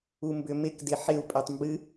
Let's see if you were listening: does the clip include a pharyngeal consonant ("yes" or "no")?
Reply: yes